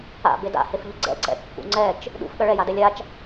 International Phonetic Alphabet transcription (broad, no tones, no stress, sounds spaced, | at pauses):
a̰ b e d a̰ h e f ʎ ʊ ɡ͡ǀ ɛ̰ ǀ ɛ̰ kː ṵ ŋ͡ǀ ɛ t͡ʃ | ɗ ṵ f ɠ ɐ ɭ ɛ j a d ɛ lʲ a t͡ʃ